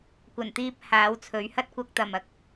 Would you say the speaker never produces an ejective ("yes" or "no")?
yes